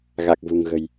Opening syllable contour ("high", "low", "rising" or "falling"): low